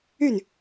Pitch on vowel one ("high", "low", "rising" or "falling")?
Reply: falling